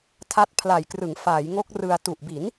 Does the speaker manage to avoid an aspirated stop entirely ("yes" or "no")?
no